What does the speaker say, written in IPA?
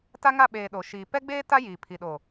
t a˦ ŋ a˦˨ ɓ eː˨ ɗ o˨ ʃ iː˨ p ɛ˦ ɡ͡b eː˦ t a˦ j iː˨ pʰ i˨ ɗ o˨

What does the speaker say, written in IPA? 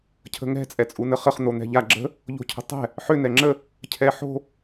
cʰ ə̤ ŋ ɛ̤ t͡sʼ ɛ t͡sʼ u n ə χ ə χ n̪ o n̪ ɛ̤ ʎ a ɡ͡ǁ ə̤ | ʎ o̤ cʰ ə̤ tˤ ɛ̤ | ħ ʏ n ɛ ŋ͡ǁ ə | cʰ ɛ ħ o̤

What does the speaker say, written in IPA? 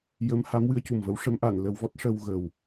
j ə˧˥ m h a˧˥ m w ɨ˧˥ ə̯ c u˨˩ m v ə˧˥ w ʂ ə˧˥ m ʔ a˨˩˨ n l ə˨˩˦ w v ɔ˦˥ t̚ ʂ ə˧ w ɣ ə˨˩ w

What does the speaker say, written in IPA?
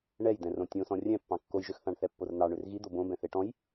ɳ ɛ j d̪ ɛ̃ r õ tʲ õ s ɔ̃ rʲ ɛ̃ pː ɑ̃ kː o j ʒ ø x θ ɑ̃ ɳ θ ɛ pː o r n̪ ɑ ɳ ø r ɣ i d̪ o b õ b ɛ̃ θ e ʈ ɔ̃ j

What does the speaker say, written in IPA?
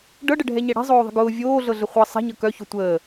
ɖ ɤ ɖ ə ɖʱ ɛ ɲ ɛ ɽ ɛ̤ zˤ oː ðˤ ə̤ ɡ ʊː vʲ oː ɮ ɤ ɮ ə χʷ ɤ sˤ ɛ̤ ɲ ɤ k œ ç ʊ tʷ əː

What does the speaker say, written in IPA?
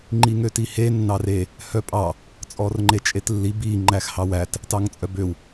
ŋ͡ǃ i ŋ ø t i h e nː ɑ r e | h œ pʼ ɑ | t͡sʼ ɔ r ŋ͡ǃ e t͡ʃʼ e t lː i b i ŋ͡ǃ æ x h ɑ w æ t | t ɑ ŋ t͡sʼ œ b ø w

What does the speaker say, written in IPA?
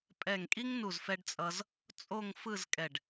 pʼ ɛ˧˩ ŋ kʼ i˥ ŋ n u˧˩ z f ɛ˧ ɖ t͡sʼ ʌ˧ z | t͡sʼ o˥˧ ŋ f ɯ˥˧ z kʼ ɛ˧˩ ɖ

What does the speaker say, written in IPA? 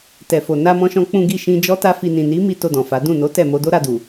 t ɛ˨ f o˨ n a˧ m ɔ̃˧ ʃ ɔ̃˧ k͡p ũ˧ ɡ i˧ ʃ ĩ˧ d͡ʒ ɔ˦ t a˦ f i˧ n ĩ˨ n i˨˦ m i˦ t o˧ d ɔ̃˨ f a˨˦ d ũ˦˨ n o˨˦ t ɛ˦˨ m o˨˦ d o˦ ɾ a˧ d u˨

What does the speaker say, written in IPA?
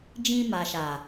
d͡ʒ ĩ˧ m a˨ ʃ a˨

